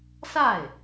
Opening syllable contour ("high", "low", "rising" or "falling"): falling